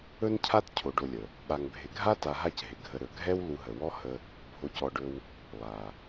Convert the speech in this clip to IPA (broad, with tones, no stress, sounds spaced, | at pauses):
ɵ˥ n cʰ a˥ t cʰ o˨ ɖ o˨ lʲ ə˩ | ɓ a˨ ŋ bʱ ɪ˨ ɡʱ a˥ t a˨ ɦ a˦ c ɦ ɪ˩ ɡʱ ə˨ ɾ ɵ˩ ɡʱ ɛ˦ w l u˨ ɦ ə˩ w ɔ˦ h ə˦ | bʱ o˨ c ɔ˨ ɖ ɵ˨ w | lˠ a˩